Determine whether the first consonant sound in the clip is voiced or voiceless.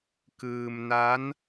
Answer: voiceless